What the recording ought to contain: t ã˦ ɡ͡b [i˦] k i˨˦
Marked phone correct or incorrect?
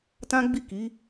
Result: incorrect: i˦˨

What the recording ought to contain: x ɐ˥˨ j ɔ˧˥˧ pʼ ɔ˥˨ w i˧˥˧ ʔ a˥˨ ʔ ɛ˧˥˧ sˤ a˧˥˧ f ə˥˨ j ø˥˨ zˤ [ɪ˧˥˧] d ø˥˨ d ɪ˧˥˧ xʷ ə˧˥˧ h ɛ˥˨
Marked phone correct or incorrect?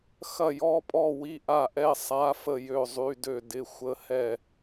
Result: incorrect: y˧˥˧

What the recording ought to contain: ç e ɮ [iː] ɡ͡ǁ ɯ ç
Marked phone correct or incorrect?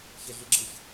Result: incorrect: i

